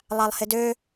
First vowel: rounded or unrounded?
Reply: unrounded